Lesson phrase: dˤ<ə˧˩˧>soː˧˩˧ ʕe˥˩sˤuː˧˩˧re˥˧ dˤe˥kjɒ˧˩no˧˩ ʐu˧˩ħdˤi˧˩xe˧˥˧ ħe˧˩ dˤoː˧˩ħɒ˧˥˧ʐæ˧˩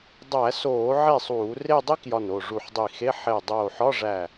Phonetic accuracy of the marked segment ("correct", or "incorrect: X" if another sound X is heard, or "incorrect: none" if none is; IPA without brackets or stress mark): incorrect: æ˧˩˧